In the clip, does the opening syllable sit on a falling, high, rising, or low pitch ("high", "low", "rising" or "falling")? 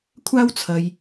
high